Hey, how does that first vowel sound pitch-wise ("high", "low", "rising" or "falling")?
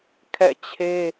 falling